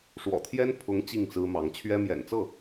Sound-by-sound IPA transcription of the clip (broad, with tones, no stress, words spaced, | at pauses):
ʂwɔ̰˨˩t̪ʰjɛ˥n pʰʊ˧˥ŋ t͡ɕi˥˩ŋt͡sɹ̩˥mɑ˧˥ŋ t͡ɕʰɥɛ˥mjɛ̰˨˩nt͡sɤ˥˩